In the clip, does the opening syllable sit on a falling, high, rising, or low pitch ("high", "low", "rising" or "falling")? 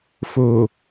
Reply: low